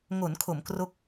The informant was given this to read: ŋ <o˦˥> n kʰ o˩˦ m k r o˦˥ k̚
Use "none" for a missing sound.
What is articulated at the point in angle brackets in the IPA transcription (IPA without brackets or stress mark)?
o˩˦